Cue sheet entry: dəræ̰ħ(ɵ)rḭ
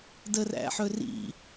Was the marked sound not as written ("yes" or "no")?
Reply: no